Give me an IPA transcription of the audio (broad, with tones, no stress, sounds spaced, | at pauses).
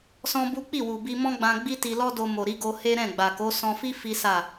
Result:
s ɔ̃˦ b u˦ k͡p i˦˨ w u˨ b i˧ m ɔ̃˦ ɡ͡b ã˧ ɡ͡b i˦ t i˧ l ɔ˦ d o˧ m o˨ ɾ i˨˦ ɡ o˧ h e˦ ɾ ɛ̃˦˨ ɡ͡b a˨ k o˨˦ s ɔ̃˧ f i˦ f i˦ s a˦˨